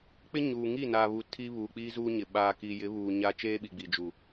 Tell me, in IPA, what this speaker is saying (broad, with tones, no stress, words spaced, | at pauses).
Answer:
k͡pɪ˦ɲuː˨ŋi˦˨ naː˨βu˨ tʰi˦βuː˨k͡piː˦ zuː˦ɲɪ˨ ɓaː˨ki˨jɪ˨˦ βuː˨ɲaː˦ t͡ʃeː˦ ɓi˨ɡ͡bi˨d͡ʒu˨